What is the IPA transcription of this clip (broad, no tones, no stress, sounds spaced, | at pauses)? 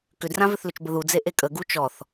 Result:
k ʏ d r ã v ʏ θ l ʏ t͡ʃ b ə ð u d͡z e ʔ e kʼ ə ɡ u t͡ʃ ɔ θ